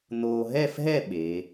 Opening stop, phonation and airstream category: implosive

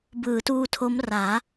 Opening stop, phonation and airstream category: plain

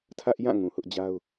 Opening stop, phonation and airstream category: aspirated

